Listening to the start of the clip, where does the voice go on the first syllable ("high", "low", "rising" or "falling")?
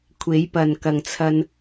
rising